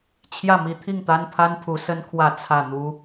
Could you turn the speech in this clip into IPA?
t͡ɕʰ j ä˥˩ m i˧˥ t̪ʰ i˥˩ ŋ t̪ a˥ n pʰ a˥ n pʰ u˧˥ s ə˥ n kʰ w ä˥˧ t͡sʰ ä˥˩ n̪ u˥

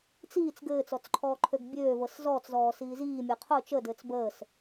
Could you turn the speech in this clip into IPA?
t͡s iː t͡s ɡ ɘː t͡s ɔ t͡s ǃʰ ɔː ǃʰ ø ɡ bʲ øː v ɤ s z ɔː t͡s z ɔː s iː z iː mʲ ɤ qʰ ʊ t͡ʃ ə d ɘː t͡s b əː s

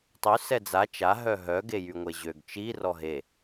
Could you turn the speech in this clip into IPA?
tˤ y s ɛ d͡z a t͡ʃ a ɦ œ ɦ œ ɡ e j y ŋʷ e ʑ ø ɡ t͡ʃ i r ɔ ɦ e

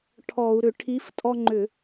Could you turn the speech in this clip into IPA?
ʈʰ ɔ˧˩˧ u̯ ɾ ʏ˧˩˧ ʈʰ i˨˥ f tʼ ɔ˦ ŋ͡ǃ ʏ˧˩˧

